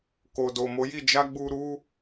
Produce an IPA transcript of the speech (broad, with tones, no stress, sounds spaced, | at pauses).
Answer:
k o˨ d o˨ m o˨˦ j i˦˨ d͡ʒ a˧ ɡ͡b u˧ ɾ u˧